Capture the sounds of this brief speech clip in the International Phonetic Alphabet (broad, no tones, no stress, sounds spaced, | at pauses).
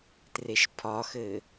t r e ʃ pʰ ɒ x ɘ